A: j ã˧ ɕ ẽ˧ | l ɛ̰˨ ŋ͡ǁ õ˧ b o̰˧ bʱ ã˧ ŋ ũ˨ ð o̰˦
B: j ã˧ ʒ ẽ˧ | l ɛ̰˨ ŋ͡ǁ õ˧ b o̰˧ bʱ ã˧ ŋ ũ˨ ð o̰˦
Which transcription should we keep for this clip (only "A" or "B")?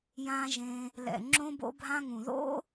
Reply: B